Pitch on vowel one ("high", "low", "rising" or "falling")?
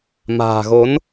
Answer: low